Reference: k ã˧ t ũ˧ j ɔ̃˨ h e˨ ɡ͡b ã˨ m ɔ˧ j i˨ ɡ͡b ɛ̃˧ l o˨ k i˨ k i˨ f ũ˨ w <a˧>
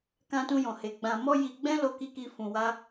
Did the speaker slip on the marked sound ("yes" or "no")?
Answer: no